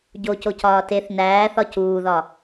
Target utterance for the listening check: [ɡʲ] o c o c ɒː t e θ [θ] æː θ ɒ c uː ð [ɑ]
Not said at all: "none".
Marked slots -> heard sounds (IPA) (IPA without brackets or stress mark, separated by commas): ɟ, n, ɒ